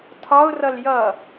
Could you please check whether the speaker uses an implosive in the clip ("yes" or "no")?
no